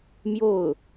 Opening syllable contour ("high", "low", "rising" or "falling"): falling